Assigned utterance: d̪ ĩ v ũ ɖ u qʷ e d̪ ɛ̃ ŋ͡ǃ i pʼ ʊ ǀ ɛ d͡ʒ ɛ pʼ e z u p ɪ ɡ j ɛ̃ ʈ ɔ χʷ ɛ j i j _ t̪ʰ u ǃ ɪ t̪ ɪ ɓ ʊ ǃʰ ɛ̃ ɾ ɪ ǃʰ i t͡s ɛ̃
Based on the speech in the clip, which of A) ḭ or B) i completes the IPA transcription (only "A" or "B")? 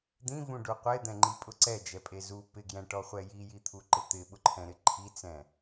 B